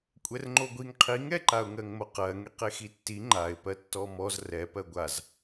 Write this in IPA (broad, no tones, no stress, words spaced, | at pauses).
kʷʼɛrŋ͡ǃoɡʷiŋ qʰiŋɛǃaʊ̯ŋɜŋ moqɜŋeqe xitːi ŋ͡ǃaɪ̯pɜ tːɔmɔz rɛ pɜɡʷaz